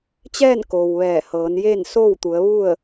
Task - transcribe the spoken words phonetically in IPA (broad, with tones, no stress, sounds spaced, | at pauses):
t͡ɕ ɛː˥˨ n k oː˩ w ʋ ɛː˧˩ h ɤː˩˧ n j eː˥˨ n s oː˥˨ w t̪ u˩˧ ə̯ ʋ u˥˨ ə̯